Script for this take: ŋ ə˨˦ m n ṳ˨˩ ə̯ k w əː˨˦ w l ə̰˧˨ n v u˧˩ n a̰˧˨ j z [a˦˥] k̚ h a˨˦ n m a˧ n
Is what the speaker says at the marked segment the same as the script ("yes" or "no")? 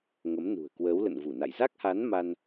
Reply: yes